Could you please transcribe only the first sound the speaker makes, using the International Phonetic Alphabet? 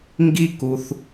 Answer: ŋ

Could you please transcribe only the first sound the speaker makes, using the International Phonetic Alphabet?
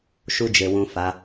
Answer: ʃ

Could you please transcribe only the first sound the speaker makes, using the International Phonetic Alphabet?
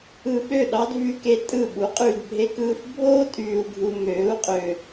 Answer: ɯ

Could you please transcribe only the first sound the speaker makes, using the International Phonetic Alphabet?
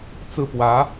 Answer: t͡s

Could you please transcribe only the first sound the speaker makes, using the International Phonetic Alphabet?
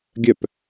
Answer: ɡʲ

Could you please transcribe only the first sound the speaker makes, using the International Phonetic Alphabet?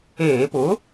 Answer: eː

